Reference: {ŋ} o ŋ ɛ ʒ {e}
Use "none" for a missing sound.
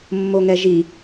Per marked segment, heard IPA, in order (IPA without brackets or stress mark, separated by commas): mː, i